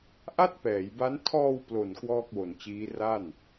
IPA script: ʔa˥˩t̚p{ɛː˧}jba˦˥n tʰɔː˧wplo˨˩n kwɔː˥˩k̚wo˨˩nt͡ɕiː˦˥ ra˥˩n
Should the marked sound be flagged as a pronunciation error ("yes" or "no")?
yes